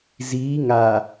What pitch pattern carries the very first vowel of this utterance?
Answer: rising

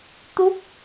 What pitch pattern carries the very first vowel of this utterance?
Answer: rising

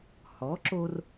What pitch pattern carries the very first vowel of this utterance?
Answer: rising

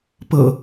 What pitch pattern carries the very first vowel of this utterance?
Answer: low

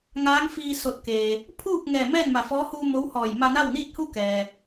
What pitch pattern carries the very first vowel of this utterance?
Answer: rising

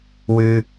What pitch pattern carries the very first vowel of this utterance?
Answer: high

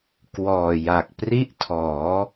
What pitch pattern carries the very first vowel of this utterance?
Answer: low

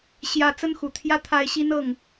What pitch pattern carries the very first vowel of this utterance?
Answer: high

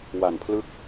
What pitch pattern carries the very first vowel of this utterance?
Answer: low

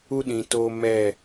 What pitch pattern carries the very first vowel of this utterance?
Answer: high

